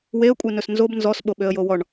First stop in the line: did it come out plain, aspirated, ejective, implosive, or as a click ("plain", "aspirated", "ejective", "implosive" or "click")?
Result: ejective